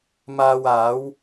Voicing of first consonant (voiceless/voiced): voiced